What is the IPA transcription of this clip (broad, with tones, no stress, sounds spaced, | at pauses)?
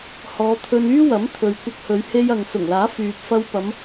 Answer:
h ɔː˨˧ t̪ʰ ɵ˧ n yː˥ w ɐ˨˥ m t̪ʰ ɵ˨ ɥ kʷ ɐ˧ k̚ h ɵ˨˧ ɥ h e˧ j ɐ˨ ŋ s ʊ˨˩ ŋ l aː˨˥ f yː˨ p̚ f ɐ˧ w p ɐ˨˧ m